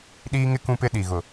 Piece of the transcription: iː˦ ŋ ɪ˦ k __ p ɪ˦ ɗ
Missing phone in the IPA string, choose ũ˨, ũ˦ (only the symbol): ũ˦